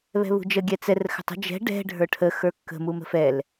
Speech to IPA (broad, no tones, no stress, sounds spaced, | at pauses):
β ɛ̤ β ṳ d͡ʒ ə ɡʲ ɛ t͡s ɛ r x ə̤ tˤ ə̤ d͡ʒ ɛ̤ ɖ ɛ̤ ɖʱ ə˞ ʈʰ ə x ə˞ kː ə̤ m u m ə̤ f ɛ l